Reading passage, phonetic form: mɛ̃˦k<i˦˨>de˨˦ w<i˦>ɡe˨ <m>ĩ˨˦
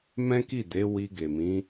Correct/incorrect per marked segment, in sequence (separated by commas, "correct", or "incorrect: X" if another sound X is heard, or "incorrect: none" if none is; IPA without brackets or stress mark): correct, incorrect: i˧, correct